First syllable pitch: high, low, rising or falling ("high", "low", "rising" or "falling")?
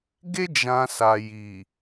high